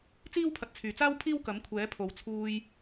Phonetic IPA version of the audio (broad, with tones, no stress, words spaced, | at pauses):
t͡siː˥wpʰɐ˨t̚t͡sʰyː˨˩t͡saː˥w pʰiː˥wkɐ˨˥mkʷʰɛː˨˥pʰo˨w t͡sʰuː˧j